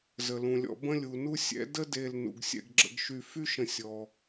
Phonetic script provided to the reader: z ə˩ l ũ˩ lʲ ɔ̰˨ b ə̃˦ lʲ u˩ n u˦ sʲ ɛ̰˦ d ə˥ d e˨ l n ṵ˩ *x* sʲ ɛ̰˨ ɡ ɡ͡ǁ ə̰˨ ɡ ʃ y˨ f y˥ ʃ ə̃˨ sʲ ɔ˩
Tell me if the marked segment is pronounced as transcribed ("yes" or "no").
no